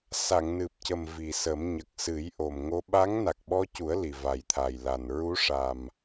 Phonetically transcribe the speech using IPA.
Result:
s a˨˩˨ ŋ n ɨ˨˩ p̚ c ə˨˩ m v i˨˩ s ə˨˩˦ m ɲ ə˨˩ k̚ s ɨ˨˩˦ j ʔ o˨˩ m ŋ o˧˥ ɓ a˧˥ ŋ n a˨˩ k̚ ɓ ɔ˧ c u˨˩˦ ə̯ l i˨˩ v a˨˩ j t̪ʰ a˨˩ j l a˨˩ n ɹ u˧˥ ʂ a˨˩ m

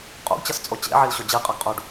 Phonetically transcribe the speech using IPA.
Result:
qʼ ṵ ɡ t͡ɕ ʌ s t͡sʼ o t͡ɕ ḛ ʕ i l ɕ o d͡ʑ i qʼ ʌ ɡ qʼ u ɖ

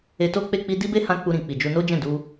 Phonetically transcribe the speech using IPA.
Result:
e˧ t o˦ k͡p e˦˨ k͡p i˧ d i˦ b e˦ h ã˧ k͡p u˧ ɾ ĩ˨ k͡p i˨ d͡ʒ u˧ n o˦ d͡ʒ ɛ̃˦˨ d u˧

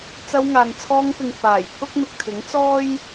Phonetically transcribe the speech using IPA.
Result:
t͡s ɐ˧ w ŋ aː˨ n t͡sʰ ɔː˧ ŋ p ɪ˨ ŋ f aː˨˩ j pʰ ʊ˥ k̚ m ɪ˨ k̚ t̪ʰ ɪ˨˥ ŋ t͡s ɔː˥ j

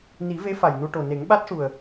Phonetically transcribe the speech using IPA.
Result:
n i˨˩˦ v e˧˥ f a˨˩ j n u˧ ʈ o˨˩ n e˨˩˦ ŋ ɓ a˦˥ t̚ ʂ u˨˩ ə̯

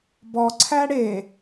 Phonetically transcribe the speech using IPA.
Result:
b ɔ ǀʰ æ ɽ e

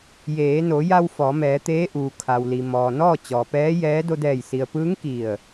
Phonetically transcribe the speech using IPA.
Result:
j eː˩˧ n o˩˧ j a˧ w f ɔː˩˧ m ɛː˩˧ t̪ eː˧˥ ʔ uː˩ kʰ a˩ w l i˩ m ɔː˩ n ɔː˥˨ t͡ɕ ɔː˩ p ɛː˧˥ j ɛː˧˥ d o˧ d ɛː˧˩ j s i˩ ə̯ p ɯː˧˥ ŋ k i˧˩ ə̯

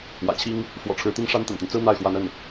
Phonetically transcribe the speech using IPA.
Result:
w ä̰˨˩ t͡ɕʰ i˥ ŋ | f w ɔ̰˨˩ ʈ͡ʂʰ ɻ̩˧˥ t̪ i˥ ŋ ʂ a˥ n t̪ a̰˨˩ n t̪ y˦ n t͡s ɹ̩˥ n̪ a˥˩ ɪ̯ x w a˧˥ n ə˥˩ n

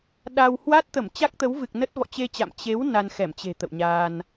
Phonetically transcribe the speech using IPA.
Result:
ɗ a˧ w h w a˦˥ t̚ t̪ ə˧˩ m t͡ɕ a˦˥ k̚ t̪ ə˨˦ w v ɨ˨˩ k̚ n ə˦˥ t̚ v ɔ̰˧˨ t͡ɕ e˧ t͡ɕ a̰˧˨ m t͡ɕ e˨˦ w n a˧ n x ɛ˧˩ m t͡ɕ e̤˨˩ t̪ ə̰˧˨ w ɲ aː˧ n

